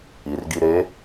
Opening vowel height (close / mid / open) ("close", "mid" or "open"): close